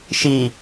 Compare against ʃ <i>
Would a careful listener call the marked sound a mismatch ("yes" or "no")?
no